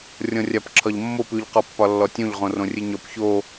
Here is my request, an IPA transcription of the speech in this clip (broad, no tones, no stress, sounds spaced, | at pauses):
rʲ ɔ̃ rʲ a p ǁʰ ɒ ʎ mː o p ʉ ʎ q ɔ pː ɒ lː ɔ tʲ õ ʎ ʁ õ r õ rʲ ɨ ɲ ɔ p ç o